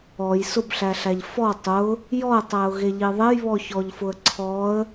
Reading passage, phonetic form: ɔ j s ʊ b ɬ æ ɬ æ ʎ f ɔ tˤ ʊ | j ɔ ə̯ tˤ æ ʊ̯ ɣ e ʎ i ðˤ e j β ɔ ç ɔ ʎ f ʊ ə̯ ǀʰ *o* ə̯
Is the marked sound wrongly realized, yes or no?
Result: yes